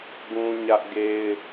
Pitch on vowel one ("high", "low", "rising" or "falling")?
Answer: high